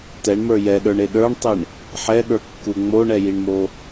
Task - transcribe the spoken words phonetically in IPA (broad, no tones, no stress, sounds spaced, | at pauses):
t ɛ ɳ m ə˞ j ɛ ɗ ə˞ ɳ e ɗ ə˞ ɳ tˤ i ɳ | ħ ɛ ɠ ə˞ kː u ŋ͡m o ɳ ɛ j i ɳ m o